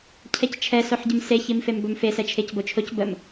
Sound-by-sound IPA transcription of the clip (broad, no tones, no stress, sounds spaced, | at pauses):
cʰ ɛ c t͡ʃʰ ɛ s o ħ ɟ ə m s e ç i m f e m b ɵ m f e s ɛ t͡ʃʰ e c b o t͡ʃʰ o c b ə m